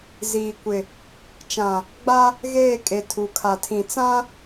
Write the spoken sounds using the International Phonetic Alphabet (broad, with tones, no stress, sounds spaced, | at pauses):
z iː˨ kʷ ɪ˨ | t͡ʃ ã˨ | ɡ͡b a˦ | ɣ eː˦˨ kʼ e˨ tʰ u˨ kʰ a˨ tʰ ĩ˨ t͡s ã˦